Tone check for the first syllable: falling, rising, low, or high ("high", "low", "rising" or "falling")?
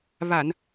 low